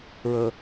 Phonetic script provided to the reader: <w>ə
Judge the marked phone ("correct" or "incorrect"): incorrect